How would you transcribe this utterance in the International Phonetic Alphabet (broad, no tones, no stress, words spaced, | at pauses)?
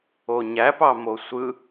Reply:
oɲæ pɑmosʷɯ